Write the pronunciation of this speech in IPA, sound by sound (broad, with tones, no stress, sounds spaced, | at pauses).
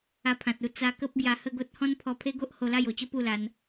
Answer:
a˧ pʰ ã˨ t̚ u˥˧ t͡s a˧ k ə˦ p̚ ɡ j a˧ h ə˥˧ ɡ o˦ t̚ h ɔ̃˦ n pʰ ɔ˧ pʰ e˦ ɡ o˦ ʔ h o˧ l a˥˧ j o˨˩ t͡ɕ ə˦ p u˥˧ l a˧ n